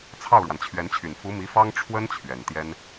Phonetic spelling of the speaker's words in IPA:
t͡sʰ ɑ˥˩ ʊ̯ ɻ w a˩ n t͡ɕʰ ɥ ɛ˧˥ n t͡ɕʰ y˨˩ n f u˧˥ m i˧˥ f ɑ˥ ŋ ʈ͡ʂʰ w ə˥ n t͡ɕʰ ɥ ɛ˨˩ n t̪ j ɛ˥ n

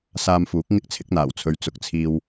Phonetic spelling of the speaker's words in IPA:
s aː˧ m f uː˨˥ k̚ ŋ ɪ˥ k̚ t͡sʰ ɪ˨˥ k̚ n̪ aː˨˩ w t͡sʰ ɵ˨˧ ɥ t͡s ʊ˨ k̚ t͡sʰ iː˧ w

